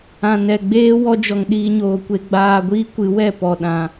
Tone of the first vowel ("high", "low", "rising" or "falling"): low